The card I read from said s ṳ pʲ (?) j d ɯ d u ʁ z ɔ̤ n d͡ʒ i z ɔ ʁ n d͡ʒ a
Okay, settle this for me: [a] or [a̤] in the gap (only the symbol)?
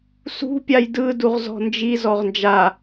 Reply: a